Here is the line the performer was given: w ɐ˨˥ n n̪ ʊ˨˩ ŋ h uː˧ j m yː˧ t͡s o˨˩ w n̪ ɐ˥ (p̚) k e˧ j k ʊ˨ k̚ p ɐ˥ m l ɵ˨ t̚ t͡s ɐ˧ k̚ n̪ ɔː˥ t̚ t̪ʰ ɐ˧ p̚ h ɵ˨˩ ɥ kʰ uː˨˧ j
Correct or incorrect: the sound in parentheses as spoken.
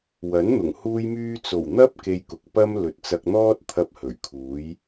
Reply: correct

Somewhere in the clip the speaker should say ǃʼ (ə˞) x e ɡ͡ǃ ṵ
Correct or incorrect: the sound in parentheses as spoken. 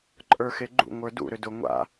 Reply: correct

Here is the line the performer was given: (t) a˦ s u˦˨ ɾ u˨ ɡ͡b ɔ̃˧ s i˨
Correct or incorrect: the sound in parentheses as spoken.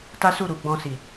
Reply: correct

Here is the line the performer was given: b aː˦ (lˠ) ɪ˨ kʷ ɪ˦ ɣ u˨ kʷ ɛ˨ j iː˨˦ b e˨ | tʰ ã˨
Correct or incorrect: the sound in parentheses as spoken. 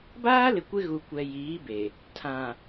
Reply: incorrect: l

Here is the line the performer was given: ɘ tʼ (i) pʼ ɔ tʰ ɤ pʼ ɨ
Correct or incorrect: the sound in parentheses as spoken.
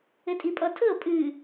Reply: correct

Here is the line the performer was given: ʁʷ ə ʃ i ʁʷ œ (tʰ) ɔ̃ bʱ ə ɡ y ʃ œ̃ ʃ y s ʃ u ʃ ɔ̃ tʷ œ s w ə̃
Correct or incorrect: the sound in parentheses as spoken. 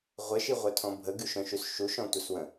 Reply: correct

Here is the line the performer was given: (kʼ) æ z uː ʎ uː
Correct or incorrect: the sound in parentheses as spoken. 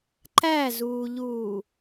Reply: incorrect: ǃ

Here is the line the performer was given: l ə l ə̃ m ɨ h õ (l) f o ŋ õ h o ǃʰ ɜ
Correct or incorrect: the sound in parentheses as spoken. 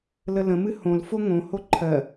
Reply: correct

